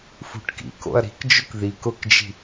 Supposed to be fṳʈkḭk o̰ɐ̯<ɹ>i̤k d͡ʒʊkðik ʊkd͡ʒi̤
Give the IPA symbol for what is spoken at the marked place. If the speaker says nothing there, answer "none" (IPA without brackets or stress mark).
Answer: ɾ